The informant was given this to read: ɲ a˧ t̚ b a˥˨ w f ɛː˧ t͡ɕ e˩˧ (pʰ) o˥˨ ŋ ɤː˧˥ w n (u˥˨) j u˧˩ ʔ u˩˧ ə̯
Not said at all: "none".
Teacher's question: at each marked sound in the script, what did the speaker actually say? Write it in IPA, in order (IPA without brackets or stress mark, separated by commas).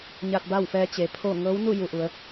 pʰ, u˥˨